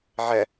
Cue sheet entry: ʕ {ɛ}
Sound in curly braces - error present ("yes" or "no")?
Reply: no